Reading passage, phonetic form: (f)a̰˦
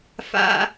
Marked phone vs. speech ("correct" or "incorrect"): correct